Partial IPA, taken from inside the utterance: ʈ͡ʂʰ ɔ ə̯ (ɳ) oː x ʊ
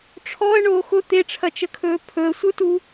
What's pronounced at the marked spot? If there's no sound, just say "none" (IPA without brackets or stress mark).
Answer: ɳ